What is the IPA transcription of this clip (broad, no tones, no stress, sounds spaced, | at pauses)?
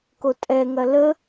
k o tʼ ɛ ŋ ɐ l ə